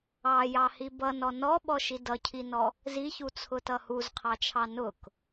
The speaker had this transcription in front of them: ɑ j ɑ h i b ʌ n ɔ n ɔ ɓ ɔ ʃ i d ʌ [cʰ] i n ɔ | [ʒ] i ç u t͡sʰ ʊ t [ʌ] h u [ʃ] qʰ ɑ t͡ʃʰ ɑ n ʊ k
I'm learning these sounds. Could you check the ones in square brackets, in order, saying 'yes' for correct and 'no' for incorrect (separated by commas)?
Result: yes, no, yes, no